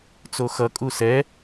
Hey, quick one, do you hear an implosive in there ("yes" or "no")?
no